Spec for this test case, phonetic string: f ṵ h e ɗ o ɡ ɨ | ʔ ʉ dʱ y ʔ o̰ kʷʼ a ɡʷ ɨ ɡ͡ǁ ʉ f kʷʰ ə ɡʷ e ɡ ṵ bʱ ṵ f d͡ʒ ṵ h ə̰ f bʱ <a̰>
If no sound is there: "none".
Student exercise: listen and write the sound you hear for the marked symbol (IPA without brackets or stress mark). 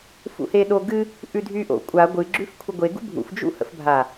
a